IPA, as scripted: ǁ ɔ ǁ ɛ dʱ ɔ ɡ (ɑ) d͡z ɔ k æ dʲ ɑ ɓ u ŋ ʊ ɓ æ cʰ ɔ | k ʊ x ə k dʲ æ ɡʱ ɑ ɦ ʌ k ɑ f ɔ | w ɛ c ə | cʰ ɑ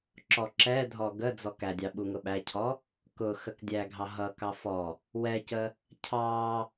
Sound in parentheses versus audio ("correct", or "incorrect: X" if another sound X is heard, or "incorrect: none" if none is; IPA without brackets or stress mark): incorrect: ə